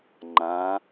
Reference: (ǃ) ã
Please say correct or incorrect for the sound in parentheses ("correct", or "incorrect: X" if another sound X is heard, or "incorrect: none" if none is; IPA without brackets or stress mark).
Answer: incorrect: ŋ͡ǃ